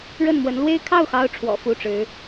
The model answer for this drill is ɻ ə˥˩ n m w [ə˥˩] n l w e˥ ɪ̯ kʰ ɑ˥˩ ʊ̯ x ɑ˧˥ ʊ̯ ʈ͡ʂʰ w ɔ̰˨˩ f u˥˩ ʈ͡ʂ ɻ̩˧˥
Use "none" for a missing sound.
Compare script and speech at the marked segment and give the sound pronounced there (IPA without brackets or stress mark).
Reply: ə˧˥